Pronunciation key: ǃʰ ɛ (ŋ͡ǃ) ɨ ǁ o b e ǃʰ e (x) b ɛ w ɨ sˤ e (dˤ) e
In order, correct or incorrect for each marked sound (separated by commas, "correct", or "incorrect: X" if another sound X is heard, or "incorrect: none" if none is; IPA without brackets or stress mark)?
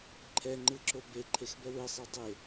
correct, correct, correct